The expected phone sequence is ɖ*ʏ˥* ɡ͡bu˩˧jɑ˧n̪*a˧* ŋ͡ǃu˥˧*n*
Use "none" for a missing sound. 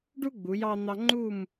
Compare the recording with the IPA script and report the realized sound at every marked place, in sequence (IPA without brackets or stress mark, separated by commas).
u˥, ɑ˧, m